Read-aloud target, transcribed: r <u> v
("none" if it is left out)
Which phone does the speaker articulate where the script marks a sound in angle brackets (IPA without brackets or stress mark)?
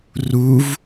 u